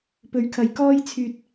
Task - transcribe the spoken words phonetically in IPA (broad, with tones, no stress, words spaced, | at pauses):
pɵ˨˥ɥkʰɐ˨˩j kɔː˧jt͡sʰyː˨t̚